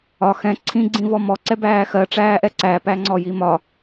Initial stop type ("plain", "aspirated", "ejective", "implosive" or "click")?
click